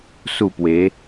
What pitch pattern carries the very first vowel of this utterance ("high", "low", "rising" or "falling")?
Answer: falling